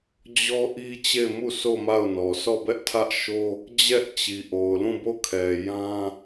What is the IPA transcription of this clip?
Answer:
d͡ʑɔ˦ ʔi˦t͡ɕe˦˨ɪ̯ mu˦˨so˦˨ ma˦˨ʊ̯nɔ˨ sʰɔ˦˨bɛ˦ʔ tʰä˦ʔʃo˦ | d͡ʑɛ˦ʔt͡ɕi˨ʔo˨ʊ̯lũ˦˨ bo˦˨kʰɛ˨jã˦

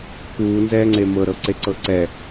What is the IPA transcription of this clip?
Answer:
kuːnzɛːŋ͡ǀe mɤɾɤǀeǀɤ ǀɛ

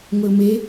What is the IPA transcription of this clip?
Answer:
ŋʷeʊ̯me

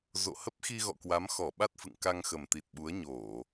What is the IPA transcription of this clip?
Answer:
zo̰˧˨hə˦˥p̚xi˧ɣɔ̰˧˨ kwa˨˦mxɔ˧˩ɓa˦˥t̚fɨ̰˧˨ŋ ka˧ŋxə˨˩mt̪i˨˩t̚ɓu˨˦ə̯ ɲo˧˩˨

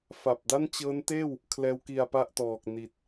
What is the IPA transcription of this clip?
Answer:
fa˨˩p̚da˥˩nt͡ɕɤː˦˥nteː˥˩w | kʰlɛː˦˥wki˧a̯pa˥˩ʔtɔː˨˩k̚ ni˨˩t̚

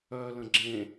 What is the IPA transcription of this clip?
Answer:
œlə̃ ɡ͡ǁẽ

